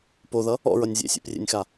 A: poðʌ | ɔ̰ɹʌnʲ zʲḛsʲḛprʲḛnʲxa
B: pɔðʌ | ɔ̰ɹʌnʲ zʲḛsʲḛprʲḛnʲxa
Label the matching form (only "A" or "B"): A